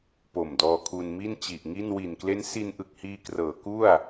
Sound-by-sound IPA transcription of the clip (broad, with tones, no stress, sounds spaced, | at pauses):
p o˨˩ m d ɔː˧ kʰ u˧ n m i˥˩ n t͡ɕ i˨˩ ʔ ŋ i˥˩ n w i˨˩ n k l e˦˥ n s i˧ n ʔ ɯ˨˩ k̚ h iː˧ k r ɤː˩˦ k u˥˩ a̯